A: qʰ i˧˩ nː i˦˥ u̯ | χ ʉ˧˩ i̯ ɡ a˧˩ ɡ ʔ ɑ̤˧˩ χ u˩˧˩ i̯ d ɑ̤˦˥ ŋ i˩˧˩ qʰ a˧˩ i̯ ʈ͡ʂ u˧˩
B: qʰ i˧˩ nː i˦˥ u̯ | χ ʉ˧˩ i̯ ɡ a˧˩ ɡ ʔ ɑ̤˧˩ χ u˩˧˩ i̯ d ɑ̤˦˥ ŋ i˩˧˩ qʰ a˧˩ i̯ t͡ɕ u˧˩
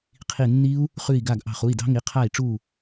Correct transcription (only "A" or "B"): A